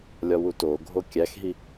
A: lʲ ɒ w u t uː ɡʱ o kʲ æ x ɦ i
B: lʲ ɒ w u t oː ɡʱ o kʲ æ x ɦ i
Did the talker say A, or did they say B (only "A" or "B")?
B